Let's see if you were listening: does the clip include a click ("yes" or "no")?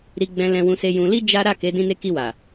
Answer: no